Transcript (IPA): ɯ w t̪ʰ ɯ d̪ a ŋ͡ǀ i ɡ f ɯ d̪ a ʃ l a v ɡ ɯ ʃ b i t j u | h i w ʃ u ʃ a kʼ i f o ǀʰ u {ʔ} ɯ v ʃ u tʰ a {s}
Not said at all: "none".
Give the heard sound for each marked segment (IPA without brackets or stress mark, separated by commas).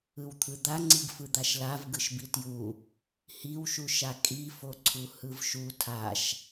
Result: h, ʃ